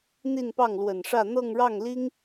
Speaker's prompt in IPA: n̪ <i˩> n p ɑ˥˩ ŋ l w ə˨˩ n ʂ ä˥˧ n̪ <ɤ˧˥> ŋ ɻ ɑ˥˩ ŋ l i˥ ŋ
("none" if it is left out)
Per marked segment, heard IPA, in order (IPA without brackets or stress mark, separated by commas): i˥˧, ɤ˥˧